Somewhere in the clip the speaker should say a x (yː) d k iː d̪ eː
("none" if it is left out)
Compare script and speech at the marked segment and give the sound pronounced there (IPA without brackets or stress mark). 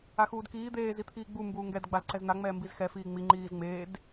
uː